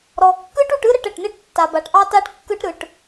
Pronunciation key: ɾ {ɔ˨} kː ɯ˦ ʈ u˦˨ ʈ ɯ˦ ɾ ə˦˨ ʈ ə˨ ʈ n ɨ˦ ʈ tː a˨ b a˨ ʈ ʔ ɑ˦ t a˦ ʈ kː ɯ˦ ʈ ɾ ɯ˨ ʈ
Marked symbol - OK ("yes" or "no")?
yes